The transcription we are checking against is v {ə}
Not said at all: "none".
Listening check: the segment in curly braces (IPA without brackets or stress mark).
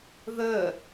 œ